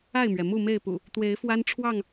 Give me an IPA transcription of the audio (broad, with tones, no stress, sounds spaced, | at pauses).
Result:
a˥˨ ɪ̯ m ɥ ɛ˩ m u˥˨ m e˥˨ ɪ̯ p ṵ˨˩ | t̪ w e˨˦ ɪ̯ f w a˦ n ʈ͡ʂʰ w ɑ˥˨ ŋ